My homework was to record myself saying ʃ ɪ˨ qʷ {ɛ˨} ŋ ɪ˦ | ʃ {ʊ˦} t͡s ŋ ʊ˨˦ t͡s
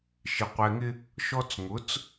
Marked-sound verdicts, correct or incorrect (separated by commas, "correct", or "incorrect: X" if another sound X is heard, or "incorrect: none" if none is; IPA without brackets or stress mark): correct, incorrect: ɔ˦